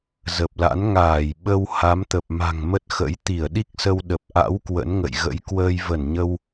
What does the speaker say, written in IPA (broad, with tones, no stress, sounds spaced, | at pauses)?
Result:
z ə˨˩ p̚ l a̰˧˥ n ŋ aː˧˩ j ɓ ə˧ w h a˨˦ m t̪ ə˨˩ p̚ m a̤˨˩ ŋ m ə˦˥ t̚ x ə̰˧˥ j t̪ i˧˩ ə̯ ɗ i˦˥ k̚ s ə˧ w ɗ ə˨˩ p̚ ʔ a̰˧˥ w k w ə̰˧˥ n ŋ ə̰˧˨ j ɣ ə̰˧˥ j k w əː˧ j v ə˧˩ n ɲ ə˧ w